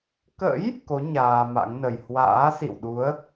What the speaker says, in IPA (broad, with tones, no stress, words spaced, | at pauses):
kə̰˧˥j | ko˨˦ ɲaː˧ma̰˧˥ŋnə˨˩j hwa̰ː˧˥sḭ˧˨wɗu˨˦ə̯